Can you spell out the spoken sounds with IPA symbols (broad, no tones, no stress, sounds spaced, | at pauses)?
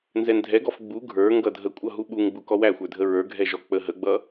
n z ɛ n dʱ ɛ ɡ ɔ f ɡ͡b u ɡʱ ə˞ ŋ ɡ ʌ dʱ ə kʷʼ ʌ ɦ u ɓ u ŋ ɡ͡b u k ɔ w æ xʷ ə˞ dʱ ə ɹ ə˞ ɡʱ ɛ ʒ ɔ k͡p ə ɦ ə ɡ͡b ʌ